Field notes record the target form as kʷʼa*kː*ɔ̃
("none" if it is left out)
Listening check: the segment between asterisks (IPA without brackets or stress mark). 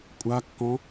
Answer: kː